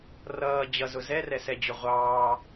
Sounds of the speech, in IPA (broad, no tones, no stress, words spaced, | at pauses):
rʌː d͡ʑʌzʊ zɛrɛsɛd͡ʑʊ ʁʷɑː